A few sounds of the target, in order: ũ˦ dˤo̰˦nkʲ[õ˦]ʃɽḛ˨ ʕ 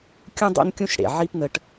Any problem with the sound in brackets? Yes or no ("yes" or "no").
yes